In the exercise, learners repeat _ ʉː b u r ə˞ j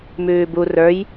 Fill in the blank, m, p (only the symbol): m